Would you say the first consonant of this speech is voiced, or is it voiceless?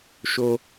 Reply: voiceless